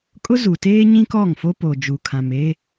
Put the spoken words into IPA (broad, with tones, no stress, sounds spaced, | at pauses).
kʼ ʊ˦ z u˨ t eː˦ ɲ ĩ˦ k ɔ˦˨ ŋ f o˦ p o˨ d͡ʒ uː˨ kʰ ã˨ m e˦